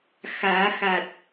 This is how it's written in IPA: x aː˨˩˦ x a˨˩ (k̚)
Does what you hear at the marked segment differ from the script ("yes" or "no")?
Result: yes